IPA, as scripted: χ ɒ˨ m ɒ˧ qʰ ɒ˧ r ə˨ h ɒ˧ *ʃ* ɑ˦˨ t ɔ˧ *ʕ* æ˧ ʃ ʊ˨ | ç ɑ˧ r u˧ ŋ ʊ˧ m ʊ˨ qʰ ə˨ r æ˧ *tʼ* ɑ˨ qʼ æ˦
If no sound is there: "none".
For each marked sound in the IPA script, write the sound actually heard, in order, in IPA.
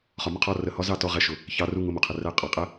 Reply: z, ʁ, qʼ

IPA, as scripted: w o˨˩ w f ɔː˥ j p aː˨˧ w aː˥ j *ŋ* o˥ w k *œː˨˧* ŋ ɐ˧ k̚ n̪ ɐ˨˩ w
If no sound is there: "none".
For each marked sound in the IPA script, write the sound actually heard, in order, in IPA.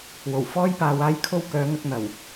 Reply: kʰ, œː˨˧

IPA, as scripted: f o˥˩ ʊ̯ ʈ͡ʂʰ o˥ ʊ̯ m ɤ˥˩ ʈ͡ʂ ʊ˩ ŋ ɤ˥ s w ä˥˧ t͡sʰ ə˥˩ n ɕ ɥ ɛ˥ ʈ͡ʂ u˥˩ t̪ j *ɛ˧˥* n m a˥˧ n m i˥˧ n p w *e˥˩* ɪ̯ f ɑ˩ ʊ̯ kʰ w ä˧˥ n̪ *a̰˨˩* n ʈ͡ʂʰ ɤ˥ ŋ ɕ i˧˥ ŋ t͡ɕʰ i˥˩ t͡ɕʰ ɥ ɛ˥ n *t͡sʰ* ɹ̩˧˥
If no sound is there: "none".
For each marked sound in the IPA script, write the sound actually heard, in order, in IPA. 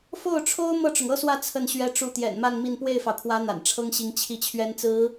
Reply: ɛ̰˨˩, e˥˩, a̰˨˩, t͡s

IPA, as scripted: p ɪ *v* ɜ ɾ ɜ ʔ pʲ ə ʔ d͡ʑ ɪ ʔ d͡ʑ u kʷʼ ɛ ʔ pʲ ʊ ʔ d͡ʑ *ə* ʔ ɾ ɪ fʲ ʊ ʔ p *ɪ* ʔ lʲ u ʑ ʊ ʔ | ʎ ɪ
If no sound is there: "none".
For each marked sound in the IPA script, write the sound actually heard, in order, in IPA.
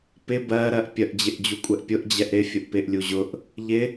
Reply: b, ɛ, ɪ

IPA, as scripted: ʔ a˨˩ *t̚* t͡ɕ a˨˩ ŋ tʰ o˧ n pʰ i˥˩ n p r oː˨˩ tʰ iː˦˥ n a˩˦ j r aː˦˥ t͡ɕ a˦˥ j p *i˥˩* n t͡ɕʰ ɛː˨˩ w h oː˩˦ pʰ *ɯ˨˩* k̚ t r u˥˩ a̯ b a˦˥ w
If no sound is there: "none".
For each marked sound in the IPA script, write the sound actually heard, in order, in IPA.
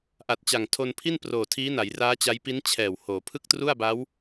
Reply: t̚, i˦˥, ɯ˥˩

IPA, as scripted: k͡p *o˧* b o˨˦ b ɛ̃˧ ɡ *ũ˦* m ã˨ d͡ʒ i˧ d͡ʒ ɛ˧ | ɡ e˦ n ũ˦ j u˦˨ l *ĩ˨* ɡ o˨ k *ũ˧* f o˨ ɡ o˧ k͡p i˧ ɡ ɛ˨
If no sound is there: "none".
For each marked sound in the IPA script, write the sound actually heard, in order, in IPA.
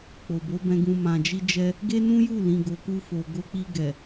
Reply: o˨, ũ˧, ĩ˨, u˧

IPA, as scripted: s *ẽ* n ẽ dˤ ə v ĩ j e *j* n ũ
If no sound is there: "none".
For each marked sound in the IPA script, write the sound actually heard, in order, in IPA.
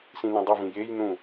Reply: ĩ, j

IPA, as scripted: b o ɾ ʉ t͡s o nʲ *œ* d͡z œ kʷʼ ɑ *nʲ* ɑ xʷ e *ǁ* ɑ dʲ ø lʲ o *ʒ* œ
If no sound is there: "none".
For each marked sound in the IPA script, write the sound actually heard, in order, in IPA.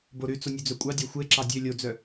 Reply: ø, dʲ, ǁ, d͡z

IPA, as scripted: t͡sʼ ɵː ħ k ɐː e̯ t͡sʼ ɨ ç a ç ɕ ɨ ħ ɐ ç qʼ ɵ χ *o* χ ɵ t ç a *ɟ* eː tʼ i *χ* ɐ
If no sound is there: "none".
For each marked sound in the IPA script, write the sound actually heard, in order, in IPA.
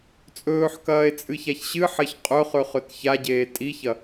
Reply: ɵ, ɟ, ç

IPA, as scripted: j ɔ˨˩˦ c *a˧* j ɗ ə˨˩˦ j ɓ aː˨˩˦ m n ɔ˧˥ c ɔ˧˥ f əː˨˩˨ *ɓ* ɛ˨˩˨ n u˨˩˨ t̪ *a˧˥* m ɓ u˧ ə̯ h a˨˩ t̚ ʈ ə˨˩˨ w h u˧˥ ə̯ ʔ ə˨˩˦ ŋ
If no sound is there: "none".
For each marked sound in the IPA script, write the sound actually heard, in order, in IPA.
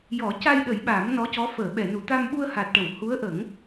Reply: a˧, ɓ, a˧

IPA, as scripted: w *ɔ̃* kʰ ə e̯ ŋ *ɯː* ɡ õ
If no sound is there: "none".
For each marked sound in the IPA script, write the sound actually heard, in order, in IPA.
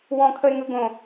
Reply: ɔ̃, ɯ

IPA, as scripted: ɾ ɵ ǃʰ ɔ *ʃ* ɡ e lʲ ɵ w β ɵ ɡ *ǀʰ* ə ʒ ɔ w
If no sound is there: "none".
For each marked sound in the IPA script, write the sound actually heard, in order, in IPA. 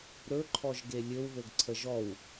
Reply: ʒ, ǀʰ

